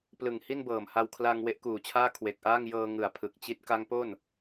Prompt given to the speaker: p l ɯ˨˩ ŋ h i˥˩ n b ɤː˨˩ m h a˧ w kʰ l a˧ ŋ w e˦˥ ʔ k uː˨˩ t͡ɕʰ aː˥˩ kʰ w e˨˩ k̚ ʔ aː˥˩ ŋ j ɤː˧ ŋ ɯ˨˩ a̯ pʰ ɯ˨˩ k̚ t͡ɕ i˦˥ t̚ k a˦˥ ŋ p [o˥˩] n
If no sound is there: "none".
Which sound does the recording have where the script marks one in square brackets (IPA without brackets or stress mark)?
o˥˩